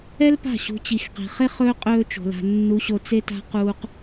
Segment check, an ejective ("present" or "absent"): present